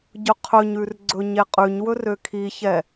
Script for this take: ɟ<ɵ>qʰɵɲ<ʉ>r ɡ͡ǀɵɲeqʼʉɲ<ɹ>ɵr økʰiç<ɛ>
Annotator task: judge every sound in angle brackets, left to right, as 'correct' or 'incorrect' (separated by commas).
correct, correct, incorrect, correct